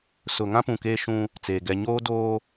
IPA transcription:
sʊ˨ŋã˦pũ˨ keː˦ʃũ˦ | t͡seː˨ ɡɛ˨ ɲoː˦doː˦

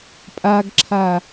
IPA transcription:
pʼaɡǁʰa

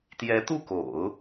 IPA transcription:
t̪jɛ˧˥t̪u˥˩ko̰˨˩˦ʊ̯

